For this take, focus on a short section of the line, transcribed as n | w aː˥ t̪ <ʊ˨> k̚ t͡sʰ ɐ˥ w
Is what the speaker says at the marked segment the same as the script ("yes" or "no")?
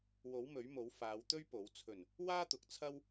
no